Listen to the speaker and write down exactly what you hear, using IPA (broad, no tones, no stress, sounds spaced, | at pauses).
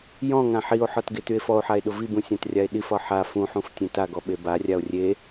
j ɔ̃ ŋ ã ħ i o̯ ħ ɒ t ɡ e t y e̯ f ɔ o̯ ħ a e̯ ɗ ʊ v i b ũ sʲ ã t rʲ a e̯ ɗ i f ɒ ħ a f ũ ħ ũ f tʲ ẽ t a ɡ ɔ ɓ e b a rʲ a o̯ rʲ e